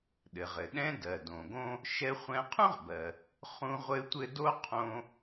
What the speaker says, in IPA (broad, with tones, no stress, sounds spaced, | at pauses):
ɗ ɘ˩ ʁ ɘ˩ ɗ ɛ̃˥ d ɜ˩ d õ˩ ɡ õ˥ | ʃ ɛ˧ χʷ ɛ̃˧ qʰ ũ˥ ʁ b ɜ˩ | χ ũ˥ ʁʷ ɘ˥ tʷ ɘ˥ d o˥ qʰ õ˧